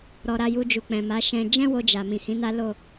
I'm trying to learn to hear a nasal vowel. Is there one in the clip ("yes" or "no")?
yes